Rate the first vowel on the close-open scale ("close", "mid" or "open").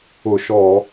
close